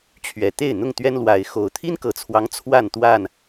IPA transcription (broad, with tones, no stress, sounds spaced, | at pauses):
t͡ɕʰ ɥ ɛ˨˩ t̪ e˥˨ ɪ̯ n̪ ʊ˥˨ ŋ t̪ ɥ ɛ˦ n l w a˨˦ ɪ̯ x o˨˩ ʊ̯ t̪ʰ i˦ n k ɤ˨˩ t͡sʰ w ɑ˦ ŋ t͡sʰ w a˥˨ n t̪ w a˥˨ n